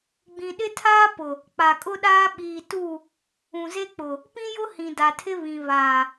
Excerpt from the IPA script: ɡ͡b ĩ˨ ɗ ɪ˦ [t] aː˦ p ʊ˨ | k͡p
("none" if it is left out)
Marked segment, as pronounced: tʰ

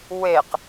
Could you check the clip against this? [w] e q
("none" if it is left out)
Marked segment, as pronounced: w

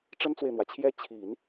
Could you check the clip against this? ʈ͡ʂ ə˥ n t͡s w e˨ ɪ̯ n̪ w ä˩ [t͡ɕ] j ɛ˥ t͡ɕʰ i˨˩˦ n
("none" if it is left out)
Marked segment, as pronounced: t͡ɕʰ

